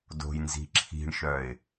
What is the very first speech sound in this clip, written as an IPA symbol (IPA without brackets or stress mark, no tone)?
d